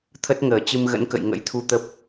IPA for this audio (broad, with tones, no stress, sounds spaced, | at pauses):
t̪ʰ ə˦˥ t̚ ŋ əː˧˩ t͡ɕ ɨ˧ m ɣ ə̰˧˥ n k ə̰˧˨ j ŋ ə̰˧˥ j t̪ʰ u˧ t̪ ə˦˥ p̚